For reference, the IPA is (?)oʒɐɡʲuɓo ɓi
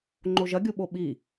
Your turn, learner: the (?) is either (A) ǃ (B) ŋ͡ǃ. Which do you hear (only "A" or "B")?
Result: B